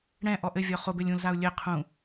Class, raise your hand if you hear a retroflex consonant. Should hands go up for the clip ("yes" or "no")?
yes